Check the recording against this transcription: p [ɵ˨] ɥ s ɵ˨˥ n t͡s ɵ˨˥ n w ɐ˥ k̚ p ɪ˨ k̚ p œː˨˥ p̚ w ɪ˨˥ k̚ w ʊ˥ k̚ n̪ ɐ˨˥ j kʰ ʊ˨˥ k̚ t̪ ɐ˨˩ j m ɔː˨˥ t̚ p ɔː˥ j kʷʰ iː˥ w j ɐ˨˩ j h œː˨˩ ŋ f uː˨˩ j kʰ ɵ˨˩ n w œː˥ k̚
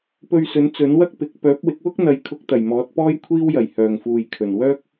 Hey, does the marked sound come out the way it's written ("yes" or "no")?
no